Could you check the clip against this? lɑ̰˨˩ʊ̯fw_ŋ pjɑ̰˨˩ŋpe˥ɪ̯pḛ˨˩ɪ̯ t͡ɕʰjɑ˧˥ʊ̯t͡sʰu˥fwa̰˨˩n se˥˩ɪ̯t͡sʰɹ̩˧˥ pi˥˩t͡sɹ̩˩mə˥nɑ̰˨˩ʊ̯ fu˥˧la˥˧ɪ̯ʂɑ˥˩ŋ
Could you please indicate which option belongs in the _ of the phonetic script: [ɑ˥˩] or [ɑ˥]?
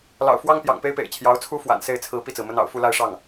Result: ɑ˥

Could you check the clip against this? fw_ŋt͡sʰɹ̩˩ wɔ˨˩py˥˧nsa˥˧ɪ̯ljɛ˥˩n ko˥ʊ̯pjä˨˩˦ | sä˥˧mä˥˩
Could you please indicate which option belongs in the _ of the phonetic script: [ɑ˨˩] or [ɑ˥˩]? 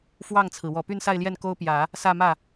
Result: ɑ˥˩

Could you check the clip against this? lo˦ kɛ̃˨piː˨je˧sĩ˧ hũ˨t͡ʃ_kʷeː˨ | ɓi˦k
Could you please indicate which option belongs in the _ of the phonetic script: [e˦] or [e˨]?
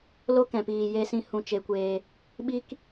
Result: e˨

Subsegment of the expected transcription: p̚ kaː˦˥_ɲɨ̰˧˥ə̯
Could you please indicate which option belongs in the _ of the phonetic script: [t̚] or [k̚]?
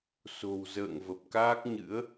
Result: k̚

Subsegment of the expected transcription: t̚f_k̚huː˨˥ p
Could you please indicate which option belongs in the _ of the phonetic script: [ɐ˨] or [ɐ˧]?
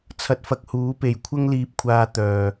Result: ɐ˧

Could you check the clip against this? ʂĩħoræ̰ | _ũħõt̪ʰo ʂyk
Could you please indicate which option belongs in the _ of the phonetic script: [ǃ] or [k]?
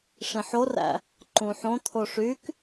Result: ǃ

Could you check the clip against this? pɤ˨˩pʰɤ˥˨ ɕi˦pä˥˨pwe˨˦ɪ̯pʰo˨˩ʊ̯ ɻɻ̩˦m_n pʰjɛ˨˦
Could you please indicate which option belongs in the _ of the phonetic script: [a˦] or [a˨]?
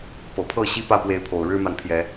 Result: a˨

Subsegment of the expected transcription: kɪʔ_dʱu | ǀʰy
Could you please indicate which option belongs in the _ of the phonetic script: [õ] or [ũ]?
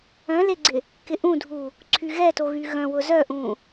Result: ũ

